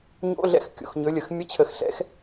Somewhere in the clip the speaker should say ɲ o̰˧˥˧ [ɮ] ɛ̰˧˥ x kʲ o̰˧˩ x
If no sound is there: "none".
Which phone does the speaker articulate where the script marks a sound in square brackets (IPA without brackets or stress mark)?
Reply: ɮ